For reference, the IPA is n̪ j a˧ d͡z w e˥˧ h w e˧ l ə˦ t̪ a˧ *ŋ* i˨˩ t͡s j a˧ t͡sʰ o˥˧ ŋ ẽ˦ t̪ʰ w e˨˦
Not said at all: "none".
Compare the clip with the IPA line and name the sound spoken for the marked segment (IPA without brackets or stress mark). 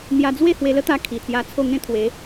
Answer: kʰ